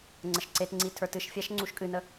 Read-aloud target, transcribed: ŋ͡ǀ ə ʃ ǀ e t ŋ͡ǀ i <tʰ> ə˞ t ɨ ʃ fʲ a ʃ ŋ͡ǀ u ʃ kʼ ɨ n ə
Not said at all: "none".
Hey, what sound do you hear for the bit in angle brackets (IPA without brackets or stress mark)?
tʰ